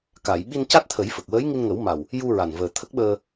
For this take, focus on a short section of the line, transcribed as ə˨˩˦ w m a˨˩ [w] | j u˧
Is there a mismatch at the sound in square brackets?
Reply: no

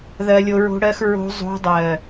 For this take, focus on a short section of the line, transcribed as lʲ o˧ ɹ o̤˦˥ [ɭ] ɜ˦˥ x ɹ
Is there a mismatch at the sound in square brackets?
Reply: yes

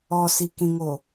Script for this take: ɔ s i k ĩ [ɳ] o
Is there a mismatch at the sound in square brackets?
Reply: yes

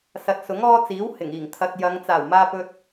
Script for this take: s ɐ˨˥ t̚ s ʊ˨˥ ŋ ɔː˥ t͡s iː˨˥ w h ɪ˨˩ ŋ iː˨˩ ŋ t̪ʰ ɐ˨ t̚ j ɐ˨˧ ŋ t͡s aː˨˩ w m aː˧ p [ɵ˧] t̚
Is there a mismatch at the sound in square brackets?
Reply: no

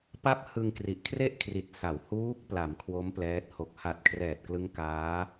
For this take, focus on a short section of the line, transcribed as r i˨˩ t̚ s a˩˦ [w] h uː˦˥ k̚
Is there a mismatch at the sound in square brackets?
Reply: no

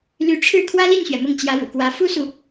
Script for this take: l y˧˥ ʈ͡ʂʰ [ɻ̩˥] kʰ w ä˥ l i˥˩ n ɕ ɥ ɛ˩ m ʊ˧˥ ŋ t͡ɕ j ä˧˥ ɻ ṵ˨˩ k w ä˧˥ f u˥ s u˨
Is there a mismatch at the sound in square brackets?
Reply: yes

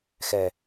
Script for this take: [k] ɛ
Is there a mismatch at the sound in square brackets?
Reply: yes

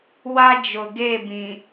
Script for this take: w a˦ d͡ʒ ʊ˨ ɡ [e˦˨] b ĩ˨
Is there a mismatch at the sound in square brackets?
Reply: no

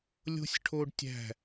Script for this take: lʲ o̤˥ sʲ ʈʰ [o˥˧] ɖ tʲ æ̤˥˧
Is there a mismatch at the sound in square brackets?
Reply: yes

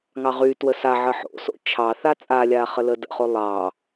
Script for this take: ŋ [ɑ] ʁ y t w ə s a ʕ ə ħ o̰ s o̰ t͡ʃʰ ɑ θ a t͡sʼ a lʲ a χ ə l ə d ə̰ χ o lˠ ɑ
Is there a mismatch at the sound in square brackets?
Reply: no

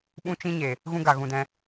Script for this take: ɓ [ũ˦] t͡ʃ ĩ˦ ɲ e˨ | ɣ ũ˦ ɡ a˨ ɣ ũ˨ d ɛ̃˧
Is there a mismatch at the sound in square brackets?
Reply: no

